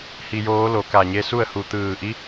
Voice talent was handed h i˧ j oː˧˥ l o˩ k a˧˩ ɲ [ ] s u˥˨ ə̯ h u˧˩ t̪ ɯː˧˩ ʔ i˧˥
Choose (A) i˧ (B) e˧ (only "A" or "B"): B